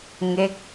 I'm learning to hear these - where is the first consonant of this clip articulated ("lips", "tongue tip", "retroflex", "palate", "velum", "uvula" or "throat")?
velum